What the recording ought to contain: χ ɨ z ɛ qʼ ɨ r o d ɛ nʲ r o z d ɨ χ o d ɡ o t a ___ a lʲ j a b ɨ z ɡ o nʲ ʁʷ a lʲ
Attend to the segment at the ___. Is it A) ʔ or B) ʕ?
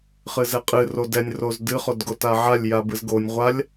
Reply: B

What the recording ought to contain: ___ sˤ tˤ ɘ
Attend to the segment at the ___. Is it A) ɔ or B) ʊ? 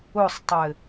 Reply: B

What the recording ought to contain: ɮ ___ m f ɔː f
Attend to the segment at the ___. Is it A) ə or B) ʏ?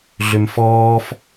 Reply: B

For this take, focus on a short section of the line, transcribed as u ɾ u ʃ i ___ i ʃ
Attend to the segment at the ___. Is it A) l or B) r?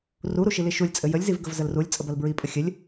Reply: A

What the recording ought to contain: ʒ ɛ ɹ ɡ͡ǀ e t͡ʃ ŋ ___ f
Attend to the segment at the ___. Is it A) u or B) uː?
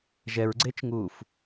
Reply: B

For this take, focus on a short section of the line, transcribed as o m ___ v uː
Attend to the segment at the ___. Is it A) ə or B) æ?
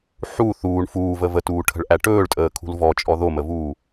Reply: A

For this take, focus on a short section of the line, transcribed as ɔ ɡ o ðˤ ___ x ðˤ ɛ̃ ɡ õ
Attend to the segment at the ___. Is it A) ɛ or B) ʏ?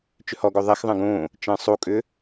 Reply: A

